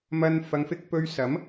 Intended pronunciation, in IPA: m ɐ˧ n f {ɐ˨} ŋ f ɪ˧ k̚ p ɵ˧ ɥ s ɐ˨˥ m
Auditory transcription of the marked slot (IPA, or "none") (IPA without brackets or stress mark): ɐ˨˧